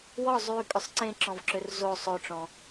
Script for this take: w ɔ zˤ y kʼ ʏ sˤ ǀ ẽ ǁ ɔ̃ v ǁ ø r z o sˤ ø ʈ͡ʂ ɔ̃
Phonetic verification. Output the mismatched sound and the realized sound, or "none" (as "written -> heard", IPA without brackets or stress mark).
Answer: none